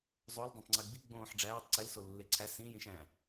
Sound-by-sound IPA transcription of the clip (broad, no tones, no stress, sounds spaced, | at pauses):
zˤ o l dˤ õ tˤ ŋ͡ǀ i ɡ͡b i ɡ͡b õː ħ ɖ͡ʐ æː tˤ ǀ e l s o lː e ǀʰ æ s ĩ j ĩ ʃ æ̃